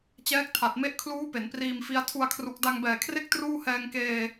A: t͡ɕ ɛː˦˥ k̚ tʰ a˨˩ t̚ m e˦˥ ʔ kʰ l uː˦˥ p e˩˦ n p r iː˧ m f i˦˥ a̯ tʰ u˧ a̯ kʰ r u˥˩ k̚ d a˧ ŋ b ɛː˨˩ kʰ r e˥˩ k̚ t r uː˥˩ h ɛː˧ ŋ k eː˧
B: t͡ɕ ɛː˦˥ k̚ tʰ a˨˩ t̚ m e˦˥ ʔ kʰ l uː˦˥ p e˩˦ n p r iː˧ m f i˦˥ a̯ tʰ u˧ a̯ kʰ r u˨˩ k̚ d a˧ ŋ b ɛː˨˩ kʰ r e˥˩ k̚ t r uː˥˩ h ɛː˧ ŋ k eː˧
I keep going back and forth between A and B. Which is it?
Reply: B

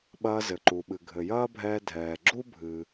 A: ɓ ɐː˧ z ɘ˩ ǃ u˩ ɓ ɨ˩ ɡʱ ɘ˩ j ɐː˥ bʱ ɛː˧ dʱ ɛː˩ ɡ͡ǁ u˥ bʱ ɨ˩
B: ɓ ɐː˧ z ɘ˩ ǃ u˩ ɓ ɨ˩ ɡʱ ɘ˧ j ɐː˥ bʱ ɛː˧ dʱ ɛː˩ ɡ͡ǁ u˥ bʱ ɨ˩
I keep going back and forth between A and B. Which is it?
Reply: A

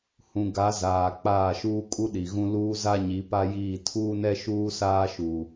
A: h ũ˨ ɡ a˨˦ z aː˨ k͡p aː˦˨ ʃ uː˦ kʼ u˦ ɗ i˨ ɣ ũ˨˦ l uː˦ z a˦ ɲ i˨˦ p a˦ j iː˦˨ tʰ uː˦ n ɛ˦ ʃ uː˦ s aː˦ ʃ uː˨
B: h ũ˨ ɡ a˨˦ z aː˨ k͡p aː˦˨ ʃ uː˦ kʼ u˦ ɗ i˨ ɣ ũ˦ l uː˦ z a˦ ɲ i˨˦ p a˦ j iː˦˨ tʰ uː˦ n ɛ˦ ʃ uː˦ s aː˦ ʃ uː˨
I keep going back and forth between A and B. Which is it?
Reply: B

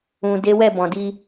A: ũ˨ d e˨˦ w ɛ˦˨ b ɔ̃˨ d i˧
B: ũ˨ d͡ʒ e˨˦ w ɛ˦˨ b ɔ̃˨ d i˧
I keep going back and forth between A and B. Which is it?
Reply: A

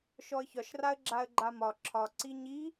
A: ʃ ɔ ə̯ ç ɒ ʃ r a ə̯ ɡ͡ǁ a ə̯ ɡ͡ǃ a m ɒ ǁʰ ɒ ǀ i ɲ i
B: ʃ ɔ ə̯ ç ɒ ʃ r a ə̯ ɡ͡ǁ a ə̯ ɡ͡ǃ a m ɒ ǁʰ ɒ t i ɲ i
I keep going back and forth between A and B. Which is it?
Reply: A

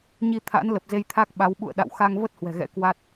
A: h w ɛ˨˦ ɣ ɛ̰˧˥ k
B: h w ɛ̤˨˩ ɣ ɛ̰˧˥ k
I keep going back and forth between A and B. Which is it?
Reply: B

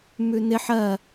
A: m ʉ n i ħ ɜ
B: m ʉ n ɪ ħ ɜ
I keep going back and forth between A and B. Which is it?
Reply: B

